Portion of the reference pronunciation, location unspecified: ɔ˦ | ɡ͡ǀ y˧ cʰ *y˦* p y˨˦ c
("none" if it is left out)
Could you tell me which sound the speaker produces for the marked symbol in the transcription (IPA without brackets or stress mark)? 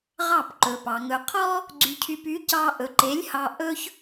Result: y˧